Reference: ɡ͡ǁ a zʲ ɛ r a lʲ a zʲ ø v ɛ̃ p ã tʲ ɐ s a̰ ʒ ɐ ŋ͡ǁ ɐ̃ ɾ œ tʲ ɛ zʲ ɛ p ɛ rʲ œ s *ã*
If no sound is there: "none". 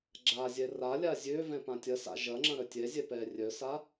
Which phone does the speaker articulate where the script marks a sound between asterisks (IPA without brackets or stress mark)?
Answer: a